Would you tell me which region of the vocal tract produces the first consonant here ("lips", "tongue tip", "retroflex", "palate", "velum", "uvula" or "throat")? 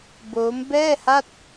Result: lips